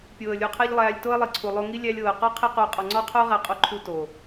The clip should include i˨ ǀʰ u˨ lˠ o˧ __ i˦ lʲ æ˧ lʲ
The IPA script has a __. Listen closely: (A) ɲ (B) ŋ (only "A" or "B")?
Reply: B